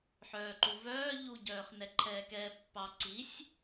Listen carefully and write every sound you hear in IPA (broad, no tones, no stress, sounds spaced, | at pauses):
ħ œː ǃ u v œː ʎ u ɟ œː χ n ɛ ǃʰ ɛː k ɛː pː ɑ ǀ i sʲ